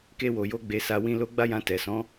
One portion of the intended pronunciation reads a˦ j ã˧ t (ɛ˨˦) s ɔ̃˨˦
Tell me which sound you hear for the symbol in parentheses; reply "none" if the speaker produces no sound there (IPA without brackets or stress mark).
ɛ˨